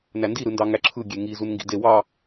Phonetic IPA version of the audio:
n æ n d i ɾ ɯ n d ɑ ŋ æ ǁʰ ɯ ɡʲ e ŋ i z u n ŋ ɡ ḭ d e w ɑ

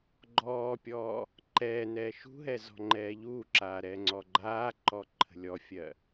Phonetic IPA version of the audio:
ɡ͡ǃ ɔː pʲ ɔː | ǃ ɛː n ɛː ʃ ṳ ɦ ɛ z ɔ̤ ŋ͡ǃ ɛː ʎ uː ǁ aː ɾ ɛː ŋ͡ǀ ɔ ɡ͡ǃ aː ǃ ɔ ǃʰ ə̤ lʲ ɔ fʲ ɜ

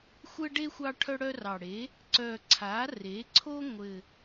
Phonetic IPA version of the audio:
xʷ ɘ˥ ɖ e˥ xʷ ɑ˥ ʈʰ œ˥ ɽ œ˥ r ɑ˨˩ ɽ e˩˥ | ǀ œ˨˩ ǀʰ a˩˥ r e˩˥ ǀʰ o˥ ŋʷ ɘ˨˩

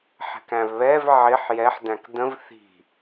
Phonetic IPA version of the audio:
ħ ɛ̤ k æ̃ v β ɛ v ʕ ɪ ħ j ɛ ħ d æ̃ k d ə̃ v θ i̤

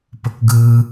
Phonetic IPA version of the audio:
p ə k ɡ ɯ

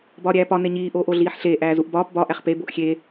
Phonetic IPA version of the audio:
b ɒː ɾʲ æː p ɒ n e ɲ iː ʔ oː ʔ o ɮ iː ħ ɬ eː ʔ æː z u ʔ b ɒː p b ɒ ʔ æ χ p e b o ʔ xʲ e

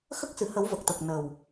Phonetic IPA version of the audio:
x ə˦˥ k̚ s ɨ˨˩˨ h ə˨˩˦ w v ə˨˩ k̚ t̪ ə˨˩ k̚ n ə˨˩ w

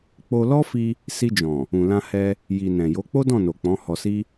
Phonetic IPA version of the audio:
k͡p o˧ l ɔ˦ f i˧ | s i˧ d͡ʒ ɔ̃˨ | ũ˨ l ã˧ h ɛ˧ | j i˨ n ɛ̃˨ j o˨˦ k͡p o˦ d ɔ̃˦˨ n o˨ k͡p ɔ̃˨˦ h ɔ˧ s i˦

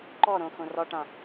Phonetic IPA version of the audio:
ǃ ɔ ɾ õ x õ r ɔ ʈ ã

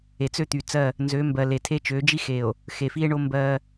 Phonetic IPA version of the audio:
e˨ t͡s ø˦ t̪ y˨ t͡s ɜ˦˨ | n z ø˨˦ m b ɜ˨ l e˨ tʰ e˦ t͡ʃ ø˨˦ d͡ʒ i˦ x e˨ o̯ | x e˨ f i˦ e̯ ɳ o˦ m b ɜ˦

